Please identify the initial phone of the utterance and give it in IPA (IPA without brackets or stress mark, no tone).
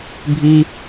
bʱ